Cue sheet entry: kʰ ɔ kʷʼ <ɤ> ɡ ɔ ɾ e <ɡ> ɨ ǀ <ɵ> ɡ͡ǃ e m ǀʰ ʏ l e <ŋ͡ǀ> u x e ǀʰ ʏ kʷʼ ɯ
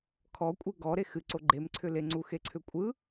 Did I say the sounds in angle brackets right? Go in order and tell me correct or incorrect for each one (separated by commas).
incorrect, incorrect, incorrect, correct